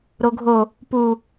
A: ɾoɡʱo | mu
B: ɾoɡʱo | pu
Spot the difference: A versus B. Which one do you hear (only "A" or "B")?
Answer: B